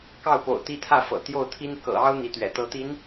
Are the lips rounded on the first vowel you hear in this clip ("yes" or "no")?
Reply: no